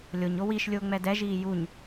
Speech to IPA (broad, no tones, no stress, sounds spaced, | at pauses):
lʲ o ɲ o w i ʃ lʲ ʊː ŋ͡m ɛ d ɛ ʒ iː j u ɲ